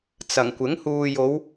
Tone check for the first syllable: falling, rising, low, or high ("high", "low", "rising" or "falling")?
low